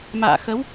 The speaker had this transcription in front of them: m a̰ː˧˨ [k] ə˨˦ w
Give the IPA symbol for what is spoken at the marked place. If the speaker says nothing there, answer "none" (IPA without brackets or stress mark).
x